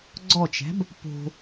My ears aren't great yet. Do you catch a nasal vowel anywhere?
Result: no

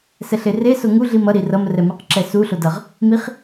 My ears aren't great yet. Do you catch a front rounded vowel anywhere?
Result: no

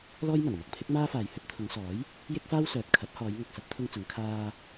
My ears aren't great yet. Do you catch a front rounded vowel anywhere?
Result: yes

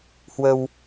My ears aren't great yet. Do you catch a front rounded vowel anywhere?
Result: no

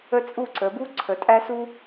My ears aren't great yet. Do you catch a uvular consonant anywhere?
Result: no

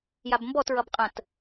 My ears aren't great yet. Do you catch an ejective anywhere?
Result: yes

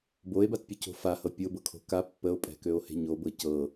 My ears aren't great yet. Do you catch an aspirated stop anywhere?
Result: yes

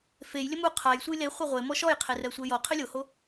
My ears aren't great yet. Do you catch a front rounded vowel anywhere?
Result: no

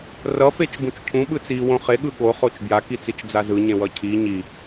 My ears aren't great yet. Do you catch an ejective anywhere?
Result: no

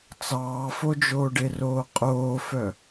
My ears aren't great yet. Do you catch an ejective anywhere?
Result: yes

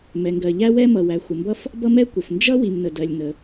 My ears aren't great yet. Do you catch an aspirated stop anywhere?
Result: no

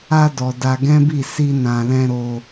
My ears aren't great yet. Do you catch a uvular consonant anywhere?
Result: no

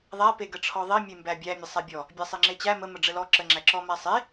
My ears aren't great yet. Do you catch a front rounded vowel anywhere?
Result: no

